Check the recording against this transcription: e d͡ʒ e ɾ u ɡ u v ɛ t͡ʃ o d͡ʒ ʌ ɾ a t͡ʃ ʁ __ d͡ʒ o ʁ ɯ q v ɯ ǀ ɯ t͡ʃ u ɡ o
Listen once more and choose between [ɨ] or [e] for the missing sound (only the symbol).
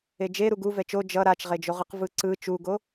e